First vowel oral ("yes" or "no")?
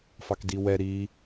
yes